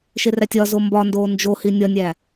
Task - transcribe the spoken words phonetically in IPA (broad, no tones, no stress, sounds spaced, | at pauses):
ʃ e r æ tʲ ɒ z o m b ɒ n d oː n d͡ʒ o h i nʲ ɒ nʲ æ